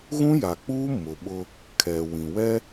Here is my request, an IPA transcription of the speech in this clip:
ɣũ˦ja˨k͡puː˦ mʊ˨ɓʊ˦ | kʰɛ˨wĩ˨ wɛ˦

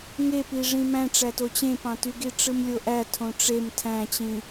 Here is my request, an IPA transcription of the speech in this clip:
ŋepi ʐĩmæ̃ʈ͡ʂæto t͡ɕẽpɑ̃tyɡi ʈ͡ʂɯmlʲoʔæ tʰõʈ͡ʂem tʰæ̃t͡ɕĩ

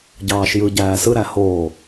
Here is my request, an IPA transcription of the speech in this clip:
ɟɑːʃjɯ ɟæːsɯ ɾæhoː

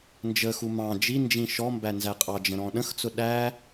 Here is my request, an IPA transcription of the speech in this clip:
nd͡ʒəxu mɑ̃ d͡ʒind͡ʒĩ ʃɔmbæ nzæqʼɑd͡ʒə̃ ɾɔ̃ɗə̃xt͡sʊ ɗæ

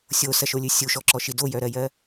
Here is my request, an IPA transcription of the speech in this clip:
sʲosɐʃolʲɨ sʲuʃɔǁɔʃi dojœɾɜjɜ

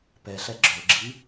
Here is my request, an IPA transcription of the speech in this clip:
pɛɬɛ ɡ͡ǁɵɡ͡ǁi

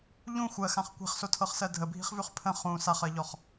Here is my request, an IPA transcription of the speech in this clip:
ʎũ xʷɜxãχ kʷi̤χsotʰɤχsɜ dʱəbʱi̤χvʉχ pʰə̃ χũ saχɜʎɔχ

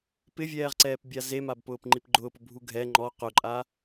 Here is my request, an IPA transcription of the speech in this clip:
pɪvʲɛːʁǀɛːp bʲazemab pʊːpŋ͡ǃipɡ͡ǃʊːpʊ bʱuɡʱɛ ŋ͡ǃɔ qʊǃʼa

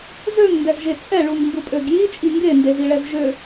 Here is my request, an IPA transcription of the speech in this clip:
zøŋndɛzʒe t͡sʼɛɭuŋ mbupʼøɡji t͡ʃʼiŋɡendez iɭɛzʒø

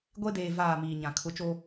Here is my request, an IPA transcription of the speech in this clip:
ɡʷe˦deː˨ vaː˦˨miː˨ɲã˨ kʰʊ˨˦t͡ʃoː˦

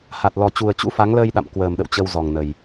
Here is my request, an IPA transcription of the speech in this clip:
ha˨˩t̚lɔ˨˩ t͡ɕu˨˩ə̯t͡ɕṵ˧˥fa˨˦ŋləː˧j ɗa̰˧˨mkwəː˨˩mɗə̰˧˨w t͡ɕə˧wzɔ˨˩ŋ nə˨˩j

